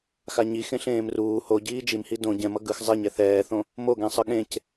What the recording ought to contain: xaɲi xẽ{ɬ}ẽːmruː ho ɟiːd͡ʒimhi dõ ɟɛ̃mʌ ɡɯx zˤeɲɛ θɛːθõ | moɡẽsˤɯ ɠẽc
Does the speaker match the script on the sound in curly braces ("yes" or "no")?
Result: yes